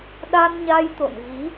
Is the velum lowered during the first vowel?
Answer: no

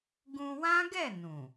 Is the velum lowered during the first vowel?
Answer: yes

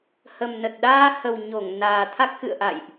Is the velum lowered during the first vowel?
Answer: no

